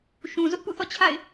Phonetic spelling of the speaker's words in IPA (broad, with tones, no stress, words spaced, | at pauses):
ʃũ˨ zʊ˦ʔpṵ˦˨θɔ̰˦˨ t͡ɕʰa̰˦˨ɪ̯